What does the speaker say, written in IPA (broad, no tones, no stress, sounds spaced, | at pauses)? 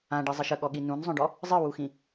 ã ɖ i zˤ ɨ ʃ ə ɠ ɔ ɠ i n ũ n zˤ œ̃ ɖ ɔ | zˤ ɨ w u x ĩ